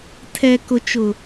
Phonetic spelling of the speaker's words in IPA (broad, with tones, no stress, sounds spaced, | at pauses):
tʰ ɛ˨ k ʊ˨ t͡ʃ ʊ˨